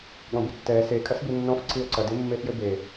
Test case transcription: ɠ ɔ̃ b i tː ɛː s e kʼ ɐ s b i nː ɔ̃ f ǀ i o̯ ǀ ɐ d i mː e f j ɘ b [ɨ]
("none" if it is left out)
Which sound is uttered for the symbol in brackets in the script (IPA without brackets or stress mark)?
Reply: e